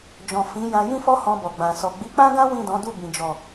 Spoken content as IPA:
d͡ʒ ɔ̃˨ f ĩ˨˦ j ã˧ j ĩ˦ f ɔ˦ h ɔ̃˧ b ɔ˨ ɡ͡b ã˨ s ɔ˨ ɡ͡b i˨˦ k͡p ã˦ ɡ ã˦ w ĩ˦˨ d ɔ̃˨˦ d u˦˨ b ĩ˨ d͡ʒ ɔ˨

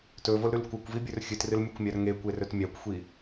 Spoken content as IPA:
t ɵ v o l ɾ ʉ l kʷ a kʷ v i bʲ ɵ r xʲ ɨ t r ɨ l mʲ o kʷ mʲ a r ŋ e kʷ e r ɵ t mʲ a kʷ xʷ i

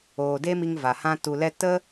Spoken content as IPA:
oː˨ d e˦ m i˧ ŋ v a˨ h ã˦ t u˧ l ɛ˦ t ə˦

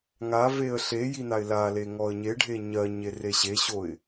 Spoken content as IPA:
ŋ a v e ə̯ ɬ e j i n a ɪ̯ l a l e ŋ ɔ ə̯ ɲ e ɖʱ e ɲ ɜ ɲ e r e ɕ e ɕ o ɪ̯

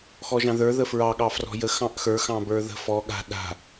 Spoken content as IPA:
x ɔ ʒ ɑ̃ ð ə˞ ð ə f ɹ ɑ ɠ ɑ f r ɔ̤ j ə x ɑ̃ ʔ x ə˞ x ɑ̃ b ə˞ ð ə̤ f ɔ ɠ a̤ ɗ a̤

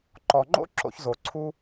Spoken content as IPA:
ǃ ɔ˨ ŋ͡ǃ o̰˦ ǁ o̰˧ ç z o˨ ǀʰ u˦

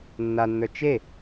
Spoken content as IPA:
nː a nː ə˞ t͡ʃ e

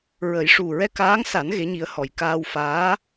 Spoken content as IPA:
ɹ ə˨˩˦ j ʂ u˨˩ ɹ ɛ˧ k aː˧˥ ŋ s a˨˩˦ n ɣ e˧˥ ɲ i˧˥ ə̯ h ɔ˨˩ j k aː˧ w f aː˧˥

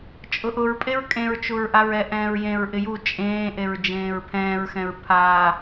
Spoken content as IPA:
t͡ʃʼ ʊ ʔ ʊ ɹ pʼ e ɹ kʼ ẽ ɹ t͡ʃ u ɹ ʔ a ɹ ɛ ʔ ɛ̃ː ɹ j ẽ ɹ ʔ ɪ j u t͡ʃʼ ẽː ʔ e ɹ d͡ʒ ẽː ɹ pʰ ɛ̃ː ɹ x ɛ̃ ɹ pʰ a

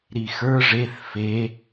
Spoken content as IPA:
ɾ i x ə˞ ʐ e θ f e

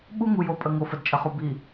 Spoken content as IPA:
ɓ u˦ ŋ u˨ j o˨ pʼ ə˨ ŋ o˨ f ə˨ d t͡ʃʼ ə˨ χ u˨ b i˨

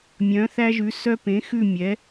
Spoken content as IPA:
mʲ œ̃˨˥ θ æ˦ ʒ ʉ˨˥ s œ˦ p ẽ˨˥ x ʉ˥˨ mʲ ɛ˨˥

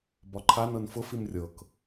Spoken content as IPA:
b ɒ ǃʰ a n ɤ n f ʊ f i m rʲ ɤ k

